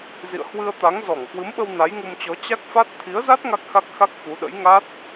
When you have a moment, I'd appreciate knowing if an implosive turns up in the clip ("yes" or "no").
yes